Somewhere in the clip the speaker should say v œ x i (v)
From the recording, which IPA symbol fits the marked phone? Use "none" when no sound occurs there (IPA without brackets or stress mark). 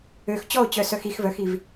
v